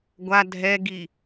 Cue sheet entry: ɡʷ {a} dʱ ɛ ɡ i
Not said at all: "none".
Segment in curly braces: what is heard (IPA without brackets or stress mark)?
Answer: a